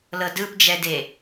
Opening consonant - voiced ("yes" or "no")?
yes